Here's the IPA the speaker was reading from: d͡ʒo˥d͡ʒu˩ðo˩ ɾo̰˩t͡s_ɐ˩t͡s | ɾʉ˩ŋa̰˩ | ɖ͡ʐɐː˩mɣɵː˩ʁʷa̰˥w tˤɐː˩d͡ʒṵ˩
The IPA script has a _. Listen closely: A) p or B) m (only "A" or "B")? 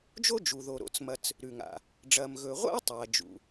B